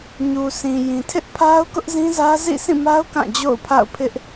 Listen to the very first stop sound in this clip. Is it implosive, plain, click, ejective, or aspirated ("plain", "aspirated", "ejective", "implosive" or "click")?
aspirated